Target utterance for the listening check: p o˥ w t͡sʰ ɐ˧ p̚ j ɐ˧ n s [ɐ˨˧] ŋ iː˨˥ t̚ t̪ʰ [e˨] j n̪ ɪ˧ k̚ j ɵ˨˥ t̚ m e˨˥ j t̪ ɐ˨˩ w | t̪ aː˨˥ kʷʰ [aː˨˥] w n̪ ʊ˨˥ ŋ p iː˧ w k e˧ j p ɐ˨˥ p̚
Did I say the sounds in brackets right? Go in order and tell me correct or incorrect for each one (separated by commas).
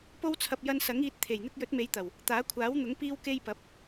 incorrect, incorrect, correct